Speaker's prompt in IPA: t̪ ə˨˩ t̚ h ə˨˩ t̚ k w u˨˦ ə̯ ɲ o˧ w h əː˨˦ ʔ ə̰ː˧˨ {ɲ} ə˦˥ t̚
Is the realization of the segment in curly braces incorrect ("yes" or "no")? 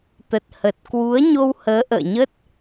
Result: no